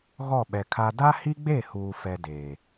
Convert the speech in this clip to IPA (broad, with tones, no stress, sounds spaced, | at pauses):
ɣ ɔ˦˨ ɓ ɛ˨ kʰ a˦ d a˦ h i˦ ɡ͡b e˦˨ h uː˨ f ɛ˦ d eː˨